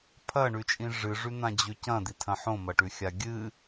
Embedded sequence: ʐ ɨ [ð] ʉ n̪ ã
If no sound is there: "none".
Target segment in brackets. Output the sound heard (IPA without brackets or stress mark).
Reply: ʐ